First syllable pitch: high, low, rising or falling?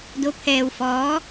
rising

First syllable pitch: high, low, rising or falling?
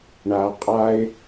low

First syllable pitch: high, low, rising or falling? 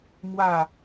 falling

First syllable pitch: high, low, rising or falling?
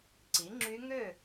rising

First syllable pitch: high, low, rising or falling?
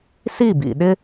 falling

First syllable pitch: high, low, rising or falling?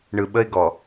low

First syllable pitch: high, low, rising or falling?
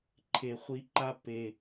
low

